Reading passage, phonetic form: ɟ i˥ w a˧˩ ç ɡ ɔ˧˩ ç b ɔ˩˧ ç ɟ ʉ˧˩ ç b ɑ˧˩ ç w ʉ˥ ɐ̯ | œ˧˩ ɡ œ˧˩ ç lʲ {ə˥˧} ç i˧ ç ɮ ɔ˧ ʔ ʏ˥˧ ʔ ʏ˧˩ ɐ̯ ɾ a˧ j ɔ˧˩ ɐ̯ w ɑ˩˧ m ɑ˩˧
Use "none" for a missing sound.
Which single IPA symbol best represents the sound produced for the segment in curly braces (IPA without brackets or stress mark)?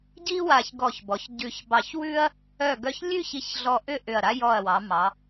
ʉ˥˧